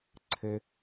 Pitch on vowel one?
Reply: high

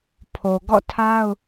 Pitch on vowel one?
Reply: low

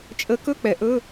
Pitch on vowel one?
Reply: rising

